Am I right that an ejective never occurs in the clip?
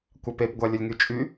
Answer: no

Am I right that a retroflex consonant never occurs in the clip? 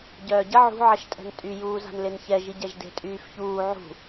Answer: yes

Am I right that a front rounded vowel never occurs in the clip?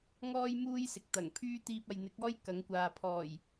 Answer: no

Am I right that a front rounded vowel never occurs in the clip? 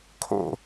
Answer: yes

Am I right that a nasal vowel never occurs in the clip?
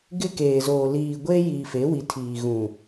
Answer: no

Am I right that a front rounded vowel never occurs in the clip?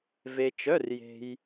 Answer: no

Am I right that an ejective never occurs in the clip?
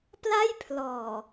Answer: yes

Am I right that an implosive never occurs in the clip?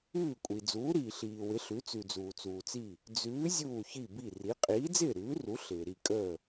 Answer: yes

